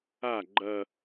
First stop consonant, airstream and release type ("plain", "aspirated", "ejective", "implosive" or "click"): click